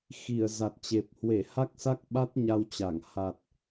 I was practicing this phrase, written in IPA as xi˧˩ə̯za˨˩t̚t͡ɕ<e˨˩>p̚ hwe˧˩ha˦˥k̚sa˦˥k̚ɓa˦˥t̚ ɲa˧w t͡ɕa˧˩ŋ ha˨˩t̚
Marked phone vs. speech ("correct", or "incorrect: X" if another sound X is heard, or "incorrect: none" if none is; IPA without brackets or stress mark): correct